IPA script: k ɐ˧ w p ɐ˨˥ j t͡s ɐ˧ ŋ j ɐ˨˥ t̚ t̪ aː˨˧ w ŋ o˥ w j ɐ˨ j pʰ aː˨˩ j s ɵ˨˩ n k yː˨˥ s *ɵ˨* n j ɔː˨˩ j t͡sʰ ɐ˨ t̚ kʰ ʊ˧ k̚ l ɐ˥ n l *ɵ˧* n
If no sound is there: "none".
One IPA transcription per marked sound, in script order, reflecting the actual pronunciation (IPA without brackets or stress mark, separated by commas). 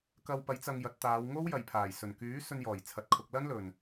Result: ɵ˧, ɵ˨˩